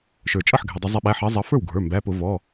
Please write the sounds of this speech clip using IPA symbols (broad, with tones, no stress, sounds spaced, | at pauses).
ʃ ə˞˩ t͡ʃʼ ʌ˥˩ ħ ɡʱ ɛ˩ dˤ ʌ˧˩˧ zˤ ɛ˨˦ ɓ æ˩˧˩ ħ ʌ˨˦ zˤ ʌ˨˦ f ə˞˥˩ w ɡʱ ə˞˩˧˩ m b æ˩˧˩ p ʊ˧˩˧ v ɔ˩˧˩